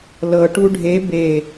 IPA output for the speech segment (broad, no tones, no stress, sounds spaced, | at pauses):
l ɤ ʈ u ɖʱ e b e